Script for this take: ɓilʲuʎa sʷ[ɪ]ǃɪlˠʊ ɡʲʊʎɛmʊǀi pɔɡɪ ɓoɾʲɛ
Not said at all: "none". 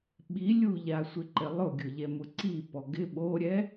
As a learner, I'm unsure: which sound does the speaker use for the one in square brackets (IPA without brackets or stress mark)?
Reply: ɪ